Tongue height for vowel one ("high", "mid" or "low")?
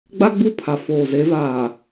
low